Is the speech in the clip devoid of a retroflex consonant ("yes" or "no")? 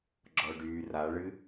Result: no